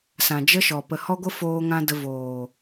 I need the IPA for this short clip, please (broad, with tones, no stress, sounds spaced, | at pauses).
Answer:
s ã˨ d͡ʒ ə˦ ʃ ɔ˨ p ə˨ h ɔ˦ ɡʷ ə˦ f oː˦ ŋ ã˦ d ə˧ v oː˨